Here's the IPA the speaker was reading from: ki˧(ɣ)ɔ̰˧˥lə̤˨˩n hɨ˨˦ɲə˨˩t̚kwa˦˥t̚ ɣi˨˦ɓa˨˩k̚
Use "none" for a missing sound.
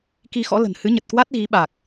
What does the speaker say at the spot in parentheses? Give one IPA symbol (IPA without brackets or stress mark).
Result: x